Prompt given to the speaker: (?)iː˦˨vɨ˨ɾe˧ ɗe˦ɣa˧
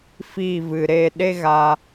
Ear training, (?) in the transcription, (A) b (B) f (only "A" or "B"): B